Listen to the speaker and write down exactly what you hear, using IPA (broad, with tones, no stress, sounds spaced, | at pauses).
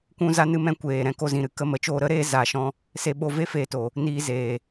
kʷ ũ˦ z a˦ n ɨ˦ m ɛ̃˦ kʷ eː˨ ɾ ɛ̃˧ k o˧ z ĩ˨ ɾ ɨ˨ k ə˧ m ə˨ t͡ʃ oː˧ ɾ ə˦ ɾ eː˦ z aː˨ ʃ ɔ̃˧ | s e˧ ɓ o˧ v e˦ f eː˧ t o˨ | n iː˧ z eː˨